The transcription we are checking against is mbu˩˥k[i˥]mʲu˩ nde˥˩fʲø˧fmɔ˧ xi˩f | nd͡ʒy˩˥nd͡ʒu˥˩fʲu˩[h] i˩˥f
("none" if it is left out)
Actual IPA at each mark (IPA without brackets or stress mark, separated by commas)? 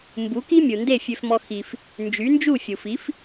i˥, f